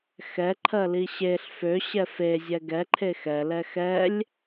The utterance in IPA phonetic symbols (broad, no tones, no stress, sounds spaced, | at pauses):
x ɛ ǃʰ ɜ l i ɕ e ɬ f ø ɕ ɛ f e zʲ ɛ ɡ ɛ ǃʰ e x ɛ l ɛ x ɛ lʲ